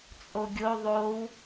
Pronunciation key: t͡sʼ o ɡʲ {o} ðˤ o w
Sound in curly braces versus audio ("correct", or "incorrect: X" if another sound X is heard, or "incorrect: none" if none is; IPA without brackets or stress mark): correct